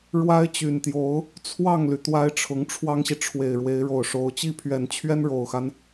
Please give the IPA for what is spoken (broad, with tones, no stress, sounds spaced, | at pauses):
ɻ w a˥ ɪ̯ t͡ɕ y˨˩ n t̪ j o˧˥ ʊ̯ | t͡sʰ w ɑ˥˩ ŋ l y˩ t̪ w a˥ ɪ̯ ʈ͡ʂʰ ʊ˧˥ ŋ ʈ͡ʂʰ w ɑ˥ ŋ ɕ i˨ ʈ͡ʂʰ w e˨˩ ɪ̯ ɻ w e˧˥ ɪ̯ ɻ o˨˩ ʊ̯ ʂ o˧˥ ʊ̯ t͡ɕ i˥˩ pʰ ɥ ɛ˨˩ n t͡ɕʰ ɥ ɛ˥ n ɻ o˨˩ ʊ̯ x a˦ n